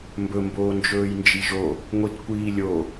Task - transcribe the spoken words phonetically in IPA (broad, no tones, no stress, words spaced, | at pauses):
mbɵmboː nd͡ʒɵːjnd͡ʒiʒo | ŋʷitkʷiːlʲo